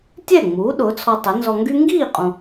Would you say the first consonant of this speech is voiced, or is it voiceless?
voiceless